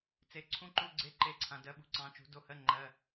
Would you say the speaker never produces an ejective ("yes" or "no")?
yes